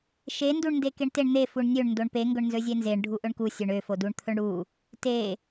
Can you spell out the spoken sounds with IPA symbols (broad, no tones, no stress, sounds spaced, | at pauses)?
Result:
ʃ e n d u ɳ n d e k e ɳ t e ɳ n̪ e f u ɳ nʲ ø ɳ n d o ɳ p e ŋ ɡ ɵ ɳ n z ɵ zʲ e n z e ɳ ɖʱ u ʔ ɵ ɳ k u sʲ ø ɳ ø f o d u ɳ t̪ʰ ɵ ɳ ɽ u | t e